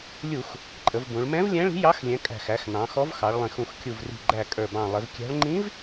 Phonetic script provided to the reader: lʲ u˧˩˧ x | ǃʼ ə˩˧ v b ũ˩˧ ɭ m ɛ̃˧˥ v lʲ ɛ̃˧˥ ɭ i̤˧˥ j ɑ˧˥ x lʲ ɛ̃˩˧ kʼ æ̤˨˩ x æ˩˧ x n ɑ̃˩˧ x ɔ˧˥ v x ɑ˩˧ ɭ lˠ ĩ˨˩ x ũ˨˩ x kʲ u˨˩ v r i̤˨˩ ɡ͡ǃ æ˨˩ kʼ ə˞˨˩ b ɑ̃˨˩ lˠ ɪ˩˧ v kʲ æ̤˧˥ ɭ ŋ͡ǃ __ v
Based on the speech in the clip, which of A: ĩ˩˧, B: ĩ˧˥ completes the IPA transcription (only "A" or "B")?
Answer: B